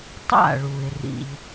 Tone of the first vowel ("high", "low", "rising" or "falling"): falling